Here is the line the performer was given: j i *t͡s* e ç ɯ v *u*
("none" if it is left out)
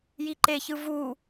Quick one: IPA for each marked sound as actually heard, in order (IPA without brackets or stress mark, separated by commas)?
ǃ, u